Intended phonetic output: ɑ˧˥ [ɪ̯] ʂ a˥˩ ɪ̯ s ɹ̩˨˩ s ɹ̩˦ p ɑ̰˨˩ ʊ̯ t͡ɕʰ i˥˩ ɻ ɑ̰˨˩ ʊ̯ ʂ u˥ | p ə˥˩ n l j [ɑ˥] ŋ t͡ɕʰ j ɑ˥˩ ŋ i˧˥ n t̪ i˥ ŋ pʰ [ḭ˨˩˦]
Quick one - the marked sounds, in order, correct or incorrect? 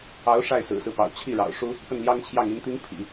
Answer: incorrect, correct, correct

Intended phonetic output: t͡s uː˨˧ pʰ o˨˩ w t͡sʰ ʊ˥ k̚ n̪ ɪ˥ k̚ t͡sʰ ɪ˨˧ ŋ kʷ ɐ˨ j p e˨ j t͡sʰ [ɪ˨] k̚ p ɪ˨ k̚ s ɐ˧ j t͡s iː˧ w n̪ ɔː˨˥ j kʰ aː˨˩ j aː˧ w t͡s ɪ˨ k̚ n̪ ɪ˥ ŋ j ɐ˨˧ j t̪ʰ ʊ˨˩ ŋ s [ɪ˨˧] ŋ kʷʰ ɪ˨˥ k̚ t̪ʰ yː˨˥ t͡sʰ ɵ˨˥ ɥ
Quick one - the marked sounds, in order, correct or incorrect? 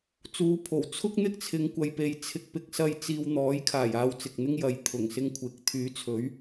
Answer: correct, incorrect

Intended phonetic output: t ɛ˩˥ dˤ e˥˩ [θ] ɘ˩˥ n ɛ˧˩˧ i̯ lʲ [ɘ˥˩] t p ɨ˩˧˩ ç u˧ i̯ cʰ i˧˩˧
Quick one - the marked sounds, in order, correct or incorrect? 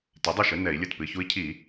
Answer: incorrect, correct

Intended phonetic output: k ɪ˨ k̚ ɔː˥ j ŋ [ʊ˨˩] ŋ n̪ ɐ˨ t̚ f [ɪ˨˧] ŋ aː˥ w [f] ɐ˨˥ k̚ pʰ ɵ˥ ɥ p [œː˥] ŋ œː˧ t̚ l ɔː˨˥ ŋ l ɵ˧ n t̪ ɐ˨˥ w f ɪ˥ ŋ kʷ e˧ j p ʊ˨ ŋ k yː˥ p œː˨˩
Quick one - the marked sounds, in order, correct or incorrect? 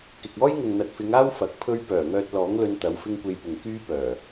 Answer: incorrect, correct, correct, incorrect

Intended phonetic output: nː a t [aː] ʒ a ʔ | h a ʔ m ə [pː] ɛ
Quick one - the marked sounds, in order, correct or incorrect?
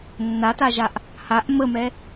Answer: incorrect, incorrect

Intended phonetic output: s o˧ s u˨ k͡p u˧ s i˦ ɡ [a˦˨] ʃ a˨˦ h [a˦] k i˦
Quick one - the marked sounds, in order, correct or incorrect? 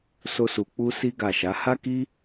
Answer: correct, correct

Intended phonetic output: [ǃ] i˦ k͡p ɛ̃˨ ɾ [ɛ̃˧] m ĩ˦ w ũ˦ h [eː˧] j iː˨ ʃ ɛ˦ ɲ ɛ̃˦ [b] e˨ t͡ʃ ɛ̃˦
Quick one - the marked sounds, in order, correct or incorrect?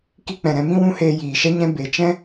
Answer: incorrect, correct, correct, correct

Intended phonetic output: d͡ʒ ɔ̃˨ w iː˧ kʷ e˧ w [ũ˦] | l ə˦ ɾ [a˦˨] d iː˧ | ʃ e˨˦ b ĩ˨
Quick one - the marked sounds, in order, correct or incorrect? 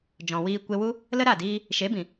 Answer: incorrect, correct

